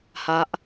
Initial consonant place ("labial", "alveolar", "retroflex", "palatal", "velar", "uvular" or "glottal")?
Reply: glottal